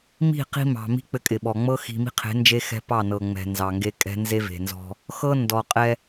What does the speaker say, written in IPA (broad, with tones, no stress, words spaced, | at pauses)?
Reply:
mi̤˦˨qi̤˦mɑ̤˨ mi̤˦ k͡pɘ˦kʼɪ˨ɓɔ˨ ŋ͡mɤ˦xi̤˨mi̤˦qʰe̤˨˦ nd͡ʒe˦xɛ̤˦ pɑ˦˨nɤ˨ ŋ͡mɛ̤˨ nzɑ˨ ŋɡe˦ kʼɛ̤˦nze˦ve̤˨nzɔ̤˦ | xɤ˦ ndɔ˨qʼɛ˦